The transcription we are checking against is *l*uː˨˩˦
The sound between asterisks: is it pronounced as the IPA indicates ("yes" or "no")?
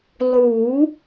no